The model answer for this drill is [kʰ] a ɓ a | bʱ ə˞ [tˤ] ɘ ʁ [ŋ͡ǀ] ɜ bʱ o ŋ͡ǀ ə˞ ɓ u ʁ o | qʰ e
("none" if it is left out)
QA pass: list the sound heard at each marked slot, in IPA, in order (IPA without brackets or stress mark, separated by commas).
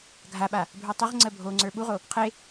ɡʱ, tˤ, ŋ͡ǀ